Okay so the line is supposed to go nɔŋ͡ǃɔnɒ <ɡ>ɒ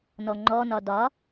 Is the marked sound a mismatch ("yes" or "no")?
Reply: yes